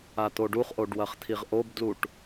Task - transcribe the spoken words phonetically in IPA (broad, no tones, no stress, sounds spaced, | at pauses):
a t̪ o ɖ u χ ʔ o ɖ w ɐ χ t̪ʰ i ʁ ʔ o b d l u ʈ